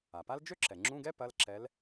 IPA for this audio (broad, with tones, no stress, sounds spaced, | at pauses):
a˩ p a˥ l d͡ʒ ø˥ ǁ ɛ˩ ŋ͡ǁ ũ˧˥˧ ɡ ɛ˥ p ɐ˧˥˧ l ǁ ɛ˧˥ l